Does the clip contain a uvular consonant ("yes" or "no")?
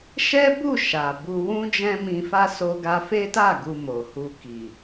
no